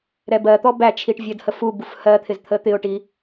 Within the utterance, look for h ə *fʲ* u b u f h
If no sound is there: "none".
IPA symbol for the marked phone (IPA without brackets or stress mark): f